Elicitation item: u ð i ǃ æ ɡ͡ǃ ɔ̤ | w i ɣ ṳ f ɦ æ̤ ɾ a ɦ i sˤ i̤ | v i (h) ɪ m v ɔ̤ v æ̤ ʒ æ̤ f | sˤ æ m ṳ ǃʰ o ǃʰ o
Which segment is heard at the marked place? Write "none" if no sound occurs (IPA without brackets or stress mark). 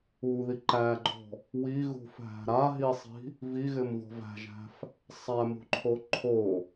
ɣ